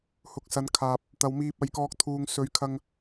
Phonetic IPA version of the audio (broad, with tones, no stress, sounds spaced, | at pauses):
h ʊ˨ k̚ s ɐ˨ n kʰ aː˨ p̚ | t̪ ɐ˨ w m iː˧ p̚ ɐ˨˧ j k ɔː˧ k̚ t̪ʰ uː˨ ŋ s ɵ˨˧ ɥ kʰ ɐ˧ ŋ